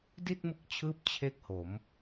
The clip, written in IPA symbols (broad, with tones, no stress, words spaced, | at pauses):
di˥˩t̚mɯ˦˥k̚t͡ɕʰɯː˦˥p̚ t͡ɕʰe˥˩k̚ho˩˦m